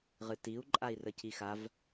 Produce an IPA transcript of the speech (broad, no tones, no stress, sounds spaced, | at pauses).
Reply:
ʁ ɨ t i u̯ ǃʼ a i̯ r ə c i x a v